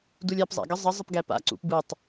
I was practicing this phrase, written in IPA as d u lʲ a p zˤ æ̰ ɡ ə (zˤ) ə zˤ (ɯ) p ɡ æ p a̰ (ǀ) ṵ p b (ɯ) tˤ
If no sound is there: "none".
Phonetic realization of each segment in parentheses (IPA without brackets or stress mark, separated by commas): zˤ, ə, ǀ, ɯ